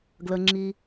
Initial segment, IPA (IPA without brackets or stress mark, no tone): ɡ